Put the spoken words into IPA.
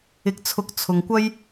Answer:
ɪ˧k̚t͡sʰʊ˧k̚ t͡sʰʊ˨ŋkʷɐ˥j

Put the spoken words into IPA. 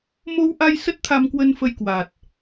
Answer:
mo˧wʔa˧j sə˦˥t̚t̪ʰa˧mkwə˧nfə˧j kwa˨˩t̚

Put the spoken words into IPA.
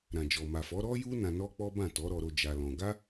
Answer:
ɾã˨d͡ʒɔ˨ma˨fɔ˨˦ ɾɔ˦ju˦ nã˧nɔ˦k͡pɔ˦ bã˦˨tɔ˨˦ɾɔ˧ɾo˧ d͡ʒa˧lɔ̃˧ ɡa˦

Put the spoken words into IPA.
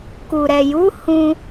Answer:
ku˨ɾɛ˨ju˨˦ hũ˧

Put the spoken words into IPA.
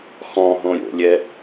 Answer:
xɔ̃ɦõ ɾʲo̰lʲɛ

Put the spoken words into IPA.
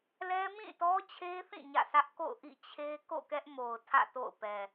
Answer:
lɛ˦ mĩ˦˨tɔ˦t͡ɕʰe˦θĩ˦˨ ɲä̰˦˨sʰä˦ʔ ko̰˦˨ʊ̯ʔḭ˦˨t͡ɕʰe˦ ko̰˦˨kɛ˦ʔmo˨ʊ̯ tʰä̰˦˨to̰˦˨ʊ̯ pɛ˨

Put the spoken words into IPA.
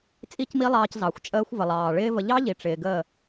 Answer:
t͡sʼi˦cmi˦lˠɑː˧c zɑ˨xʷ t͡ʃʼəː˧xʷvə˨ lˠɑː˨ɭɪː˦və˧ ʎɑ˦ʎi˨ ʈ͡ʂɪː˨ɡəː˦˨

